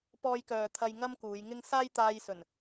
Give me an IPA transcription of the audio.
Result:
p ɔː˧ j k œː˨ t̪ʰ ɐ˧ j ŋ ɐ˥ m k uː˨˧ j ŋ ɪ˥ ŋ s aː˥ j t̪ aː˧ j s ɵ˨˩ n

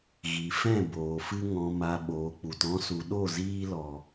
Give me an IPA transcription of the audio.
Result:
ɣ i˨ f ɛ̃˦˨ b oː˨ f ɨ˧ ŋ ɔ̃˨ m a˨ ɓ oː˨ k͡p u˨ t ɔ̃˧ s u˨ ɗ o˦˨ z iː˧ l ɔ˨

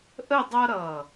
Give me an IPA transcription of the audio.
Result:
ʔ ə˥˧ dˤ ʌ˥ ɾ ʌ˧˩

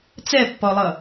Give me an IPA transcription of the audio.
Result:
t͡s ɛ pː ɔ lˠ ʌ

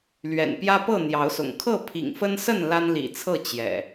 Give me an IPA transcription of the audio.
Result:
l ɥ ɛ̰˨˩ n p j ä˦ p ɤ˥˨ n̪ j ɑ˨˦ ʊ̯ s ʊ̰˨˩ ŋ kʰ ɤ˥˨ pʰ ḭ˨˩ ŋ f ə˦ n s ə˥˨ n l a˦ n l ḭ˨˩ t͡sʰ ɤ˥˨ t͡ɕ j ɛ̰˨˩

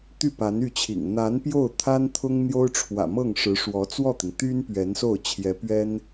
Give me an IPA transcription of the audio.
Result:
t̪ y˥˩ p a˧˥ n y˥˩ t͡ɕʰ ḭ˨˩ ŋ n̪ a˧˥ n p j o˥˩ ʊ̯ t̪ʰ a˥ n t̪ʰ ʊ˥ ŋ n̪ j o˥ ʊ̯ ʈ͡ʂʰ w ä̰˨˩ m ɤ˥˩ ŋ ʂ ɻ̩˧˥ ʂ w ɔ˧˥ t͡s w ɔ˥˩ t̪ i˩ ŋ t̪ y˥ n p ɥ ɛ˧˥ n s o˥˩ ʊ̯ t͡ɕʰ j ɛ˧˥ p ɥ ɛ˥ n

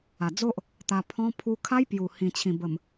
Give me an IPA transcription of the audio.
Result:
a˨˩ d͡z o˦ ʔ | t̪ a˧ pʰ ɔ̃˦ pʰ u˧ kʰ a˦ j p j u˨˩ h ĩ˨˩ t͡ɕʰ ĩ˨˩ b ə˨˩ m

